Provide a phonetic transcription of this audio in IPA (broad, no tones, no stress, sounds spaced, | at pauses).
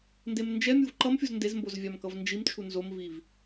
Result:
n d e m n d͡ʒ ɛ mʲ u v ǃ ʌ m fʲ u z n d e z m b o z vʲ a m k ʌ v n d͡ʒ i m t͡ʃʰ u n z o m v i v